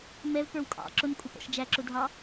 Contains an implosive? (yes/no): no